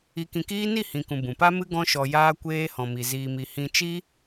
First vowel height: high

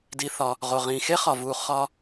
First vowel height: high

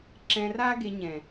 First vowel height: mid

